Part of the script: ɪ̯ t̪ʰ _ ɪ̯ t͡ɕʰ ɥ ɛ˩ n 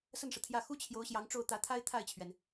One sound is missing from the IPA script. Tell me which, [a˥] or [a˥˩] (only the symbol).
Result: a˥˩